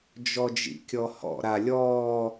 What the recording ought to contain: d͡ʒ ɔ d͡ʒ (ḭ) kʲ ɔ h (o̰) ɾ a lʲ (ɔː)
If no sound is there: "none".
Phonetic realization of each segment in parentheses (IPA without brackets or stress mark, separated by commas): ḭ, ɔ̰, ɔː